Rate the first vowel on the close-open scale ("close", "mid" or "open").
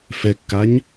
mid